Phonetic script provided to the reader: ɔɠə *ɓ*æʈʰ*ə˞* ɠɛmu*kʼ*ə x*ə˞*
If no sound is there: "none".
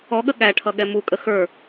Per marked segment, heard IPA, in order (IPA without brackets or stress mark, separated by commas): ɠ, ʌ, kʼ, ə˞